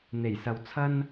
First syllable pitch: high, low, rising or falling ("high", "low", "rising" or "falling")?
low